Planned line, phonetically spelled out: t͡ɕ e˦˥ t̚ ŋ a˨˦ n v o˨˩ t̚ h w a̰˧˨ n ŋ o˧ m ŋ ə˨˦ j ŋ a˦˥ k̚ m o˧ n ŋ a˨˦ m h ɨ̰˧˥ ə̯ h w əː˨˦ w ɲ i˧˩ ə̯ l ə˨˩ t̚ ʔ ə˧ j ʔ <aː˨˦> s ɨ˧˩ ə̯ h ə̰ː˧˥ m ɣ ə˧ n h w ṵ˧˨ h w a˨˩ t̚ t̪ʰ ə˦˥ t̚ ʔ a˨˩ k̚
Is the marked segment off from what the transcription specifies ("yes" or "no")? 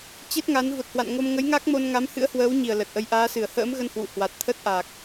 no